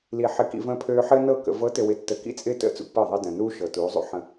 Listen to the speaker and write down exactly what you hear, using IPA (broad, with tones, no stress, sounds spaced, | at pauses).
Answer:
l i˨ ħ ɪ˨ k ḭ˨ v ə̃ː˦ pʰ øː˦ ħ ɘː˦ n ɤ˦˨ k ə̰˨ v ɤ˨˦ t ɘ˨ w ɪ˨ tː ə˨ k ḭ˦ t͡sʼ ɪː˦ t ə̰˦ t͡s ṵ˦ pː ɤ˦˨ ðˤ ɤ˦ d ə̃ː˨ n uː˦ ʃ ɤ˨ t uː˨˦ zˤ ṵ˦ ħ ə̃˦